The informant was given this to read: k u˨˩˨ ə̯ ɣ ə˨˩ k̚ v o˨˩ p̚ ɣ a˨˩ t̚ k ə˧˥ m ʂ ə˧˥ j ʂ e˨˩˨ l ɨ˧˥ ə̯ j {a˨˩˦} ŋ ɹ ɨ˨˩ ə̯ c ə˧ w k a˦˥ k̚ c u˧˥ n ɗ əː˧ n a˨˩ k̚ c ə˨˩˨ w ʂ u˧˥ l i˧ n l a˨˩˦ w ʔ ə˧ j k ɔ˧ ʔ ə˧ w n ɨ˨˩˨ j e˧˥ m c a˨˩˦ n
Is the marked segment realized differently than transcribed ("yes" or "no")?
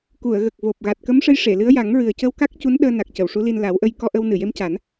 no